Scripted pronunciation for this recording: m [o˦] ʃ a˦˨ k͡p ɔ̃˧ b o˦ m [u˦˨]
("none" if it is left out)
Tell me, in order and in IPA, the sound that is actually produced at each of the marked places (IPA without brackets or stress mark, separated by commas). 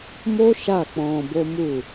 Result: o˦, u˦˨